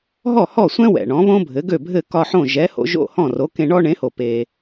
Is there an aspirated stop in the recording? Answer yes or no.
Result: no